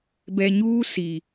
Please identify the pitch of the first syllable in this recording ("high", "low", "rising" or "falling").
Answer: low